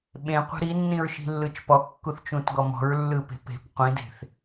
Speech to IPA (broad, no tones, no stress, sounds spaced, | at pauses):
ɓ ẽ qʷ e̤ ɾ i nː ĩ ɹ ʃ i̤ lː ɯ t͡ʃ p ɔ kː u θ t͡ʃ ũ t ɡ ɔ m ɔ̤ ɹ lː ɯ p e̤ p e̤ p qʷ ĩ d e̤ θ